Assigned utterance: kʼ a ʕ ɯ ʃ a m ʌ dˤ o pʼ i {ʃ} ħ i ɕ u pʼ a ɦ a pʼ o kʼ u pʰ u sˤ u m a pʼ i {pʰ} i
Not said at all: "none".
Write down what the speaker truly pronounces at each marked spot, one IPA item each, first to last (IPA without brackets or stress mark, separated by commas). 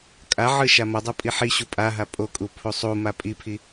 none, pʰ